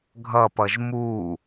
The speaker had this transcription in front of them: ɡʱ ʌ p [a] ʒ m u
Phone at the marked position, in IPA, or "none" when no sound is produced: ʌ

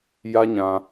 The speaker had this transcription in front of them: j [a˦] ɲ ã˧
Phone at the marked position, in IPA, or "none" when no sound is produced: a˦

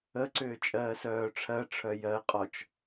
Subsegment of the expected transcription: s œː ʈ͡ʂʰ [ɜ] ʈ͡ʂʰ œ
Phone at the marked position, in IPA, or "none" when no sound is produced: ɜ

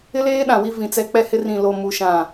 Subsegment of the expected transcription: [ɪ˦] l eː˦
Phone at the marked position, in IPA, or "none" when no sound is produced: ɪ˦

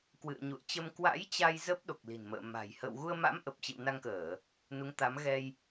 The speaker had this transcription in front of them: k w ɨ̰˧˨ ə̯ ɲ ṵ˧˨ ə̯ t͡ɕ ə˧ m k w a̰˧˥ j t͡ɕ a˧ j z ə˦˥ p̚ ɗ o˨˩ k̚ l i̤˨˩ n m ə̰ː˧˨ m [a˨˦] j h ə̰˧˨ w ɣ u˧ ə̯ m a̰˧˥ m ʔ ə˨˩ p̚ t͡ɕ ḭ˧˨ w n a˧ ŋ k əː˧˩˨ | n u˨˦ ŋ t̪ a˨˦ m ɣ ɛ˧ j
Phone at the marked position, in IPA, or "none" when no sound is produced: a̤˨˩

